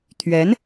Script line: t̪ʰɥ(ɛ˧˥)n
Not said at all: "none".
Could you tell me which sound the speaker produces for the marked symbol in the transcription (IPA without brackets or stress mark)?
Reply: ɛ˧˥